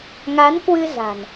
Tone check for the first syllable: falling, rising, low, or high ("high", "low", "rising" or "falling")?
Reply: rising